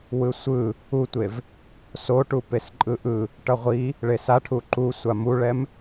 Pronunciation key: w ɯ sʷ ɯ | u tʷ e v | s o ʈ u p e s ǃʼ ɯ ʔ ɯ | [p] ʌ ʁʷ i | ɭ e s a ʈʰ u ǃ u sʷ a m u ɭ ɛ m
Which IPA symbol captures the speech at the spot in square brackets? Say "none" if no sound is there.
ʈ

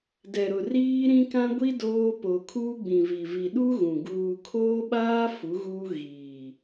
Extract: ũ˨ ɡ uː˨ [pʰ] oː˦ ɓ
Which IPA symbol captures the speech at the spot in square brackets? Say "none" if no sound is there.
kʰ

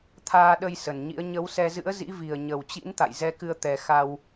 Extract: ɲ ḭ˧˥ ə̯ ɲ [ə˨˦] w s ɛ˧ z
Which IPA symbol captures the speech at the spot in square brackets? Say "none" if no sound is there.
ə˨˦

